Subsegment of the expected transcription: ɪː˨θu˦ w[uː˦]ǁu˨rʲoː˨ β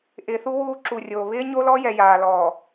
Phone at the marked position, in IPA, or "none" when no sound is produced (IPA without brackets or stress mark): uː˦